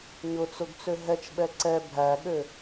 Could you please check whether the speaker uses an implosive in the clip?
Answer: yes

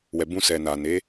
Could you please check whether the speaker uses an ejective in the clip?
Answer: no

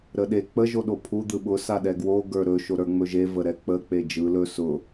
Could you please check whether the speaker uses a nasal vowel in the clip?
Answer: no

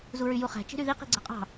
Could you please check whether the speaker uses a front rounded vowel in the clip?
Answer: yes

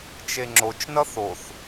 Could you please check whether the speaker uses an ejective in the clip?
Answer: no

